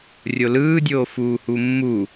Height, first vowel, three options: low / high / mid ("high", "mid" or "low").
mid